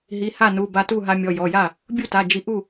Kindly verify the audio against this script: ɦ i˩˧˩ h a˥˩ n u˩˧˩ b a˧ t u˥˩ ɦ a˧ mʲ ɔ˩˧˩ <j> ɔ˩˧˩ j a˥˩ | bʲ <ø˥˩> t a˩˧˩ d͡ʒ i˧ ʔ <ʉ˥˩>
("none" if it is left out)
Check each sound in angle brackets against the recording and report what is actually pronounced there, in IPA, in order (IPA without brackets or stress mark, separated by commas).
j, u˥˩, u˥˩